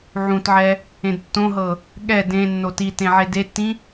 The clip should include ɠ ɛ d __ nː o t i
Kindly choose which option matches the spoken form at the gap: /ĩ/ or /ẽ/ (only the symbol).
ẽ